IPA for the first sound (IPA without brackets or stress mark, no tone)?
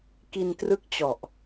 k